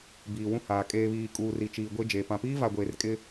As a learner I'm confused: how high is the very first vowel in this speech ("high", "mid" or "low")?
high